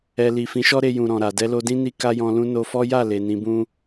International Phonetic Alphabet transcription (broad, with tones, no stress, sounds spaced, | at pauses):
ɛ˧ l i˨ f ĩ˨˦ ʃ ɔ˦ ɾ e˧ j ũ˨ ɾ ɔ̃˨ ɾ a˨ d ɛ˧ l o˧ d ĩ˦ n i˧ k a˦ j ɔ̃˧ l ũ˦ n o˧ f ɔ˦ j a˦˨ l e˨ n ĩ˧ b ũ˦